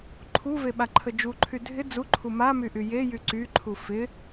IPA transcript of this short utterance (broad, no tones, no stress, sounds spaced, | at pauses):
ǃʰ u v e ɓ a ǃʰ ə d͡ʒ u ǃʰ y dʱ ɪ d͡z u ǃʰ u m a m y ʔ y j e j y ǀ y ǃʰ u f ɪ